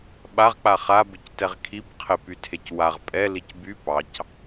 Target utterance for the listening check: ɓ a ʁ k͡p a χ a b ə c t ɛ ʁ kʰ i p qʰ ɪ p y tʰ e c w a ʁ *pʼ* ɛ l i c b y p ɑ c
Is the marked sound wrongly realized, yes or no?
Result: no